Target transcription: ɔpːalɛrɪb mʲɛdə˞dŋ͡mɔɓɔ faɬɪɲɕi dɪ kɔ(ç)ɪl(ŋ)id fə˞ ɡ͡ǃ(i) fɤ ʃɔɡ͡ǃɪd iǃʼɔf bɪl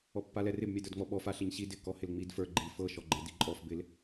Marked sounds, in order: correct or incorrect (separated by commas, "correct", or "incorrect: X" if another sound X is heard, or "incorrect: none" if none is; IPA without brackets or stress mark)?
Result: incorrect: h, incorrect: ŋ͡m, correct